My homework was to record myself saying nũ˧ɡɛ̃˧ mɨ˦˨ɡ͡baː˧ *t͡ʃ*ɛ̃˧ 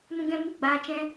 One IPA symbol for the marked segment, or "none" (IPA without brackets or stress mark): t͡ʃ